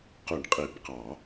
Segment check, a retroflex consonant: present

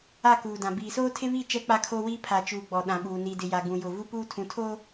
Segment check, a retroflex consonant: absent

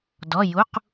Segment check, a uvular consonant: present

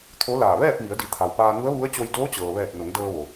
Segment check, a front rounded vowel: absent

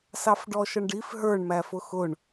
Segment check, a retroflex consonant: present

